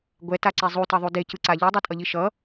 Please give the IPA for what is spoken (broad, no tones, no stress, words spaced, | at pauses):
ɡʷɛtaǀe zˤutʌðˤu decɯǀa ʎɯdˤitʼʌʎi ʃʌ